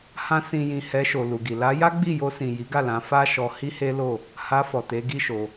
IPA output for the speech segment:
h ã˧ s ĩ˨ j ĩ˨ h ɛ˧ ʃ o˨ l u˨ ɡ i˨ l a˧ j a˦ ɡ͡b i˦˨ j o˧ s ĩ˨ j i˨˦ ɡ a˦˨ l ã˧ f a˦ ʃ ɔ˧ h i˦ h e˦ l o˦˨ | h a˧ f ɔ˨ t e˨˦ ɡ i˦ ʃ o˧

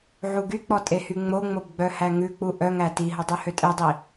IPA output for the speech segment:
ʕ u ɡ y k͡p ɔ tʼ e h y ŋ͡m o ŋ͡m o b ɡ͡b œ h æ ŋ ʉ k͡p u ʔ œ ŋ æ t i ɦ ɵ dˤ y h ø tʼ e dˤ i

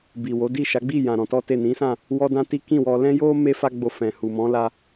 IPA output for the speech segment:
b i˨ w o˨˦ d i˦˨ ʃ a˨˦ ɡ͡b i˦˨ j ã˨ ɾ ɔ̃˧ t ɔ˦ t e˦˨ n ĩ˨˦ s ã˦˨ | w ɔ˦ d ã˦ t i˦ k ĩ˦˨ w ɔ˧ l ɛ̃˦ j o˦ m e˦ f a˦ ɡ͡b o˧ f ɛ̃˨ h u˨ m ɔ̃˨˦ l a˧

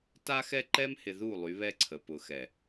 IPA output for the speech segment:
t a˦ x ɛ˦ ǃ ɛ˦ m h ɪ˨ ð u˦˨ lˠ y˨˦ β ɛ˦ ǀʰ ə˨ p ʊ˨ x ɛ˨

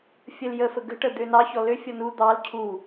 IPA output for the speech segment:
fʲ ə l j ə f ə ɡ ə̤ ʈ ə d̪ ø n ɑ ç ɔ l ø fʲ ɔ n u d̪ ɑ l cʰ u

